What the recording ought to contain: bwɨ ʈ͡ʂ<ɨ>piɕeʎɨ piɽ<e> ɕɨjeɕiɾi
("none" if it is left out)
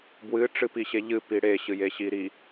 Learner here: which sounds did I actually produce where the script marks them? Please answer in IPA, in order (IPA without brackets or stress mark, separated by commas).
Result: ɨ, e